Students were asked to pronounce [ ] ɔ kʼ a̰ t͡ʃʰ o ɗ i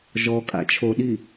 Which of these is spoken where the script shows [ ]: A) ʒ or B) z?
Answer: A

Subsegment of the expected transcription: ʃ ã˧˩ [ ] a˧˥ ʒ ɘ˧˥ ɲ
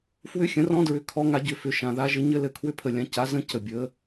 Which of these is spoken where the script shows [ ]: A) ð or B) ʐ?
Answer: A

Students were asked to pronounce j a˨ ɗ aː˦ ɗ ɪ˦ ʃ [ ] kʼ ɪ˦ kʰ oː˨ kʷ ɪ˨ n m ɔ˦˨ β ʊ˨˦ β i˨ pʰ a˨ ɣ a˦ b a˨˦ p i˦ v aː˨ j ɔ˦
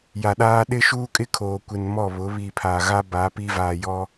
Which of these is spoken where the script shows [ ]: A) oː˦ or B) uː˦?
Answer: B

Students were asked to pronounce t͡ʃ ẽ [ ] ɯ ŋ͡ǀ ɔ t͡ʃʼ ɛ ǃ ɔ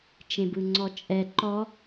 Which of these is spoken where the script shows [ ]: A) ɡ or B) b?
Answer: B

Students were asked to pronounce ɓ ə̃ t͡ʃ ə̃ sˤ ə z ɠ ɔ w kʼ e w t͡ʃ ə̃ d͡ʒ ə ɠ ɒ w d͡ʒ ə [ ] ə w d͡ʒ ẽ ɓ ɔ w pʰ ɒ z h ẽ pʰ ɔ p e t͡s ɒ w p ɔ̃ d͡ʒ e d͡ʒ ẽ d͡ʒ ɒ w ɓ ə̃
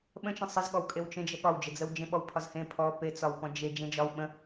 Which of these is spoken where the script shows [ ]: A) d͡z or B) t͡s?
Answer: A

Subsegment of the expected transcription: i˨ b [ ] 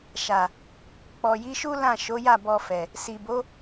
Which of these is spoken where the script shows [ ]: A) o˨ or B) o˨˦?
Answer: B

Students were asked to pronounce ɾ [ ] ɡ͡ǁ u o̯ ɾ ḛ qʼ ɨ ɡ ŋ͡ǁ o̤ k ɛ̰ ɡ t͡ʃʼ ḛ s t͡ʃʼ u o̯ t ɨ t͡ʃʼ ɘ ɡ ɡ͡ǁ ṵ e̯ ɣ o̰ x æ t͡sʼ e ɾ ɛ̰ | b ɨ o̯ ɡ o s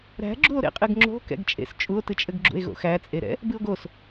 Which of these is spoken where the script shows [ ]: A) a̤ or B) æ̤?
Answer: B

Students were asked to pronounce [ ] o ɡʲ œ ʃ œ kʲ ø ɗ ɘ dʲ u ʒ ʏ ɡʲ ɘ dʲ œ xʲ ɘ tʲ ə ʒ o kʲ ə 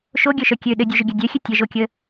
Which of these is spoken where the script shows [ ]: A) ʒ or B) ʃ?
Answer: B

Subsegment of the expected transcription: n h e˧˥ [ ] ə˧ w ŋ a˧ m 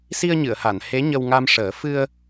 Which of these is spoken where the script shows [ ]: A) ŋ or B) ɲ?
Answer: B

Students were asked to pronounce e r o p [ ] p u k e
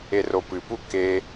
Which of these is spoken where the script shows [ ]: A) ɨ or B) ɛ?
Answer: A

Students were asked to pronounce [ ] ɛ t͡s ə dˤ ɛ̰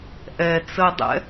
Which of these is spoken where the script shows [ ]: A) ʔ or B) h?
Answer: A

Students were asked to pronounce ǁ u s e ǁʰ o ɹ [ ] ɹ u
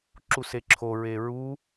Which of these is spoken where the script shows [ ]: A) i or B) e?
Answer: B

